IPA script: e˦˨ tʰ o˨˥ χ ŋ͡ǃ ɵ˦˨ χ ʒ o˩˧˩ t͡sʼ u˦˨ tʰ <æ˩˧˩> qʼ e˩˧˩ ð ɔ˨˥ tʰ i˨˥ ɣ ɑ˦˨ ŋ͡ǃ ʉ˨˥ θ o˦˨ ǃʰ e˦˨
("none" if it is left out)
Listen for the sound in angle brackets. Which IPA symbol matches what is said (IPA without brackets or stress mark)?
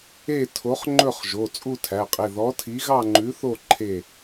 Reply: æ˩˧˩